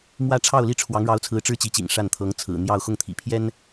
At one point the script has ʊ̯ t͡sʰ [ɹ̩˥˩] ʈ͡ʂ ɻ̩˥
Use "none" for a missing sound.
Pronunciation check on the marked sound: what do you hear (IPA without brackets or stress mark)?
ɹ̩˧˥